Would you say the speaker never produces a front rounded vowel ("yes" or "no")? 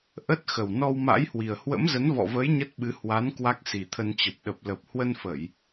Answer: yes